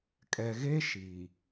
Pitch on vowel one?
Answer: low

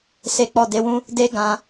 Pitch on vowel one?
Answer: low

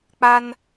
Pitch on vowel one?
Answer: high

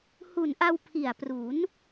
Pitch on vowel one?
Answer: low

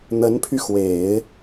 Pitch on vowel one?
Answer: rising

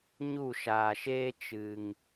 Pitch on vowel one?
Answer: falling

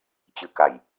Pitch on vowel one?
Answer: rising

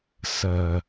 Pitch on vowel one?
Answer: low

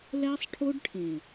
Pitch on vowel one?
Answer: high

